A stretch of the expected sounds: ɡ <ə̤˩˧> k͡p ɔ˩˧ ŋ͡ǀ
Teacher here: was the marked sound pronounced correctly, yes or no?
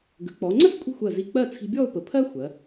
yes